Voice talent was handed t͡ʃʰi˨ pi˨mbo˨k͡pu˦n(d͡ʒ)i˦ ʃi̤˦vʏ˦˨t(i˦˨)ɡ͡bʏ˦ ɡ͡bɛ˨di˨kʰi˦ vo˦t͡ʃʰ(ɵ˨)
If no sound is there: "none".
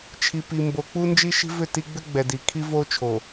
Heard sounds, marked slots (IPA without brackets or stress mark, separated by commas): d͡ʒ, i˦, o˨